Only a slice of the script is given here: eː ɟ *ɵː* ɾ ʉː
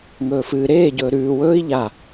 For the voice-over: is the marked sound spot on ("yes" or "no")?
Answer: yes